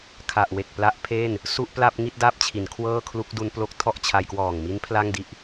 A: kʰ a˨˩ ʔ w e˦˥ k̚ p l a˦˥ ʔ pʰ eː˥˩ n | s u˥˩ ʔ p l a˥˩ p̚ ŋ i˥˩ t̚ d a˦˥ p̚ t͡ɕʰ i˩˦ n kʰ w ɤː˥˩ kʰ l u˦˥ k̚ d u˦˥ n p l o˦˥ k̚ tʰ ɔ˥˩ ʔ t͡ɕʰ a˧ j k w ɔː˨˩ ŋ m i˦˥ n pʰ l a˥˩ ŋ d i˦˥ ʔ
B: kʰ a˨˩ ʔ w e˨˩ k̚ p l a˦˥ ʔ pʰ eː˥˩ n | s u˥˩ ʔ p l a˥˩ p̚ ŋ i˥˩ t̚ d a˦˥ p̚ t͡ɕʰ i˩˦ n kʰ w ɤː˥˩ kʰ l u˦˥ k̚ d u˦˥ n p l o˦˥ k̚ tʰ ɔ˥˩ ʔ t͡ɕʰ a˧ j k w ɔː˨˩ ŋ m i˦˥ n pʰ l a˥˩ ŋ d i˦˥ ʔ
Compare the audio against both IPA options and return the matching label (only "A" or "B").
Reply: B